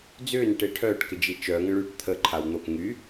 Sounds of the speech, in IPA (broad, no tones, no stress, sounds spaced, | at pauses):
d͡z ʏː n ʈ e ʈʰ œː ʈ k ɪ d͡ʒ i t͡ʃ œ ŋ ə̃ ɭ yː ʈ t̪ʰ ə ǃʰ a w n̪ o k ŋ y